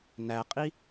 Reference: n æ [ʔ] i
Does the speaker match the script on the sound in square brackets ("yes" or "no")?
no